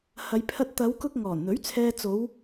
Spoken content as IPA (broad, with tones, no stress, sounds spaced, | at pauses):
h ɐ˨˧ j pʰ ɐ˧ t̚ t̪ ɐ˨˧ w k ʊ˧ k̚ ŋ ɔː˨˩ n n̪ ɵ˨˥ ɥ t͡sʰ ɛː˧ t͡s o˨˧ w